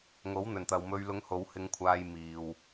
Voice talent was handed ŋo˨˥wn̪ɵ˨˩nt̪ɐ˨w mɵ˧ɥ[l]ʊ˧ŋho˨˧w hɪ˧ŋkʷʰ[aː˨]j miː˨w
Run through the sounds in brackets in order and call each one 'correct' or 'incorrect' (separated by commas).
correct, incorrect